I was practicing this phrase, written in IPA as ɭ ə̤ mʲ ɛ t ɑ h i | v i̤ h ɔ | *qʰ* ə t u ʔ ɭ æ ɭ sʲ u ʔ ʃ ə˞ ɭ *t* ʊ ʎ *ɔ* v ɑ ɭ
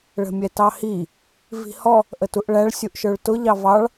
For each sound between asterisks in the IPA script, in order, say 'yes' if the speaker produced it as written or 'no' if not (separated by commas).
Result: no, yes, no